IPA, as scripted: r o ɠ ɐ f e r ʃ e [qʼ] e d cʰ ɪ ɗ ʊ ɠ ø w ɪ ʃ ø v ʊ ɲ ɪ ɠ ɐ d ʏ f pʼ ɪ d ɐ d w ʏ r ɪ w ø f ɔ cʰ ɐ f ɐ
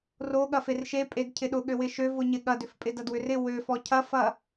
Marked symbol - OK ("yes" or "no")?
no